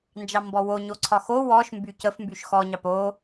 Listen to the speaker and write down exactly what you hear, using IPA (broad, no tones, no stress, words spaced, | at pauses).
nd͡ʒɑmbɔwo ɲoǀʰɒxo wɔʃ mbycəf mbyʃxɔ ɲɑpo